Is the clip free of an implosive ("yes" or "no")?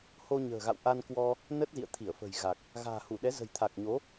no